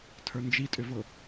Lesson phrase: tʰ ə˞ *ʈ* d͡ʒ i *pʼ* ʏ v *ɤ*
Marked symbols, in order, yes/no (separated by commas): no, no, yes